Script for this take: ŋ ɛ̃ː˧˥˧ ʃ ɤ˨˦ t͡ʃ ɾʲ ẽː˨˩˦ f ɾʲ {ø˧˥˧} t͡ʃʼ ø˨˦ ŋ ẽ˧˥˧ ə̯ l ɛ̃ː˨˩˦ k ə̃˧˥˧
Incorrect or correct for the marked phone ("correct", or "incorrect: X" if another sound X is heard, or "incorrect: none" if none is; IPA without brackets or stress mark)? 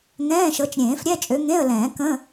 incorrect: ɛ˧˥˧